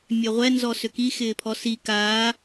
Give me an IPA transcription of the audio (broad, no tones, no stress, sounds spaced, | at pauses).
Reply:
mʲ œ ʁʷ ɛ n z ɔ s ʏ k i x ɪː pʰ ɔ s i k aː